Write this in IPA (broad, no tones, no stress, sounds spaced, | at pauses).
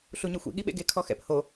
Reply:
ɬ u ɲ ɘ xʷ ḭ ɠ i ɓ ḛ ɡ e kʰ ɔ x ɛ̰ p h o